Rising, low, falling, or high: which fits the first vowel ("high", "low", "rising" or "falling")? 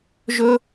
high